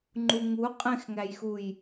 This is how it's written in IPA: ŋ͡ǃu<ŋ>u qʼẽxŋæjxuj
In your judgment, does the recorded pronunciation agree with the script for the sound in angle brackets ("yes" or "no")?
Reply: yes